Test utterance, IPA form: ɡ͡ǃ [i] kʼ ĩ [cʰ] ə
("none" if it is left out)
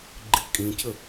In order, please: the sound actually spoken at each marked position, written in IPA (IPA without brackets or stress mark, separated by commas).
i, cʰ